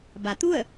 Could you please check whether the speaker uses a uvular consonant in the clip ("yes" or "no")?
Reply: no